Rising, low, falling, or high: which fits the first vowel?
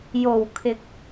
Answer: low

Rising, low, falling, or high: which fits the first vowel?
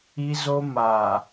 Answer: high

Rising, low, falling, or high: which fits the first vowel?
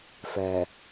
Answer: low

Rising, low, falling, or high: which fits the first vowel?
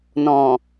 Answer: low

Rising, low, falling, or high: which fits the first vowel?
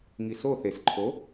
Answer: low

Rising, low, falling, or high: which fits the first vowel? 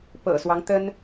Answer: low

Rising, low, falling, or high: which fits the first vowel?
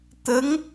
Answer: rising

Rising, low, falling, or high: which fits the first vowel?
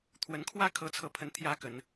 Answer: rising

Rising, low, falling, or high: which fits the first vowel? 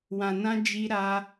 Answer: low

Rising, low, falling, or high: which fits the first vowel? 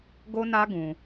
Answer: high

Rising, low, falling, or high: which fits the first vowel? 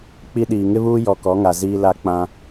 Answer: high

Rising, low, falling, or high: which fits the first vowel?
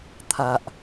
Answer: low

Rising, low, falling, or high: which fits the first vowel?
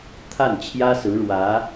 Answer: falling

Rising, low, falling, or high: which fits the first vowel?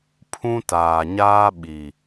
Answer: high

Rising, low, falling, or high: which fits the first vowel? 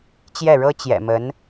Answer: falling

